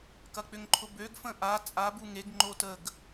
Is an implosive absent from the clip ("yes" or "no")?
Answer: yes